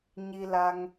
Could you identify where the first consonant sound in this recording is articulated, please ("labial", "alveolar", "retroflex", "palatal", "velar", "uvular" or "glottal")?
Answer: palatal